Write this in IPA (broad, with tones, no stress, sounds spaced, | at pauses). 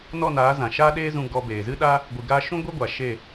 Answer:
n ɔ˦˨ n aː˨˦ z ã˨ ʃ aː˦ ɗ eː˦ z ũ˧ ɡ ɔ˧ b eː˨ z ɨ˦ ɗ a˦ | ɡʷ ɨ˨ ɡ aː˧ ʃ ũ˦ ɡʷ ɛ˦ ɡʷ a˨ ʃ e˦˨